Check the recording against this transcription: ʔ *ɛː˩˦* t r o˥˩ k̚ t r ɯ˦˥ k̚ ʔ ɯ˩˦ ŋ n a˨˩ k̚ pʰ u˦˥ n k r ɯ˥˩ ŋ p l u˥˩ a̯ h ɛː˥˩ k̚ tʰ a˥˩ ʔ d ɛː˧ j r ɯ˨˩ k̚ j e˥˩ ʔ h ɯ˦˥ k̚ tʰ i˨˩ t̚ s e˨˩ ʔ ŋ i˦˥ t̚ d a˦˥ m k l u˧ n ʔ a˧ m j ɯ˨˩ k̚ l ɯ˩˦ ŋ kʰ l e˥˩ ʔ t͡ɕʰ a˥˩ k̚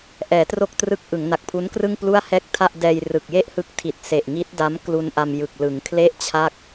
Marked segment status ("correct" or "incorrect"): correct